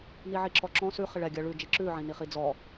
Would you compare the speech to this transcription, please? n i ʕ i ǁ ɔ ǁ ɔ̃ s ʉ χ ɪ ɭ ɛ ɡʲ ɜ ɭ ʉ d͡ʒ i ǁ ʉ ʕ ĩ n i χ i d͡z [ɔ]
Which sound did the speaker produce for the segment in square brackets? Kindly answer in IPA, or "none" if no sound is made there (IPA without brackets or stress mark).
ɔ